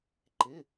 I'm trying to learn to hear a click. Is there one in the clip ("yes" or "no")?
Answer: yes